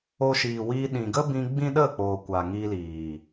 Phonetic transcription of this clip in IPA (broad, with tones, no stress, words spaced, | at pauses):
o˧ʃiː˨wiː˧ ɗĩ˨ɡə˦bĩ˧ ɡ͡bĩ˦ɗə˦˨k͡poː˨ kʷa˨ŋi˧liː˨